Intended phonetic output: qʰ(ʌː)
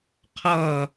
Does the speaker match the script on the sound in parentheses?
yes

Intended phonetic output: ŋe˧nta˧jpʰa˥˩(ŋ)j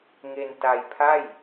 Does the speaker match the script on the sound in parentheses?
no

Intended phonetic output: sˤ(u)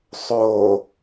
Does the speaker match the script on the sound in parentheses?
no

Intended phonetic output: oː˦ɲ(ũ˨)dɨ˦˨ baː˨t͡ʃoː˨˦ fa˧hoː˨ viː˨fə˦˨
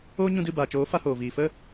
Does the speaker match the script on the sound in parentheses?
no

